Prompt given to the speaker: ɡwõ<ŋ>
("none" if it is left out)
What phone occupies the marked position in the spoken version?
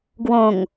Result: ŋ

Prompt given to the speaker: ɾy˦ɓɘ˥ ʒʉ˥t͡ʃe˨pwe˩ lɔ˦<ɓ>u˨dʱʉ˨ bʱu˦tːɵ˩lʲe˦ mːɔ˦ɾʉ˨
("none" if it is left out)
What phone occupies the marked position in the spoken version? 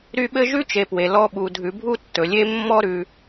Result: ɓ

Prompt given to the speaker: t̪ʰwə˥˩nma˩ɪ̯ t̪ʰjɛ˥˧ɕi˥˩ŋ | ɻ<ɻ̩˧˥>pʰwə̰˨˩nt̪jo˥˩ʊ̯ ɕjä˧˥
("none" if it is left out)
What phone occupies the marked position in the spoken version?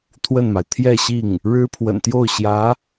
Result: ɻ̩˥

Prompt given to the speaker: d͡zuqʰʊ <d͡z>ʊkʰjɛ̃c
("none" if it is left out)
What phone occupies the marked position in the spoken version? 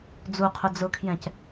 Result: d͡z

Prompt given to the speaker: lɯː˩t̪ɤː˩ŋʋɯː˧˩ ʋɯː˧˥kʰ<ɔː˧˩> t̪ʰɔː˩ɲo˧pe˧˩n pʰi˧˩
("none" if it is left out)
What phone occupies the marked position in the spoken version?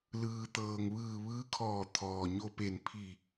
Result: ɔː˧˩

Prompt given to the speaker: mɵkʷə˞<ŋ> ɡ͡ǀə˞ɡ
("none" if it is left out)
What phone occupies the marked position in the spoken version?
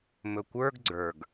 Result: ɡ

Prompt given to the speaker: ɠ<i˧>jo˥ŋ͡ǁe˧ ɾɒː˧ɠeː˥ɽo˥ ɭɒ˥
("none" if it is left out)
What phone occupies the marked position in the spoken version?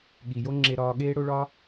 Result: i˩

